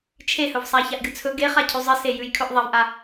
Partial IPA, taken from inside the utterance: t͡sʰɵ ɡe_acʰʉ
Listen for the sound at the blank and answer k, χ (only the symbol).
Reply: χ